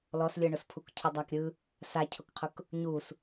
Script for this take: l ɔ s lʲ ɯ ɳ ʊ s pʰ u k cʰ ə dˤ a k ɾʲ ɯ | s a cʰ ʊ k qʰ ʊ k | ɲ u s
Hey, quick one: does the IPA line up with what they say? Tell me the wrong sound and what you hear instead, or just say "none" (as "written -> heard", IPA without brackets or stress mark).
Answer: none